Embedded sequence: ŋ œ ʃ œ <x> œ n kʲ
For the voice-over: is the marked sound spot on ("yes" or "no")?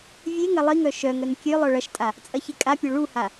no